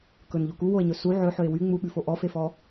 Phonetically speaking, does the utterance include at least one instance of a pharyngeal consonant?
yes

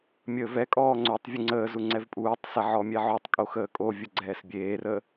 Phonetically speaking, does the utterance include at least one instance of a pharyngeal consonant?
yes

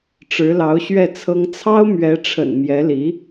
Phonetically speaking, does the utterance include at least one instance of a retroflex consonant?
yes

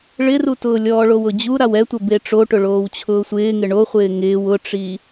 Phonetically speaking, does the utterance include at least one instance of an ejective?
no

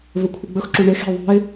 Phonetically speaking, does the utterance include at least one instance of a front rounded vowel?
no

